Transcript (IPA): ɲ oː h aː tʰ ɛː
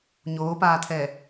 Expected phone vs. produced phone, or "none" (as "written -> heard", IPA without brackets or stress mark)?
h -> p